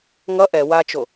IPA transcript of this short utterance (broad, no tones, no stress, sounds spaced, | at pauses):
ŋ ʌ ʔ ɛ w a t͡ʃ o